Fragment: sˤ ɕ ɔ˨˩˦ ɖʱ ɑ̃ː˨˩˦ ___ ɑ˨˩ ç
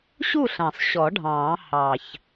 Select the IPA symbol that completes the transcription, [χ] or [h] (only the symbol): h